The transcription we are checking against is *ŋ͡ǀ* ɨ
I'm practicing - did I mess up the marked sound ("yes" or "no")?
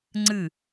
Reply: no